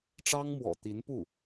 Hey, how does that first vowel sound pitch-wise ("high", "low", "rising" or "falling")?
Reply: high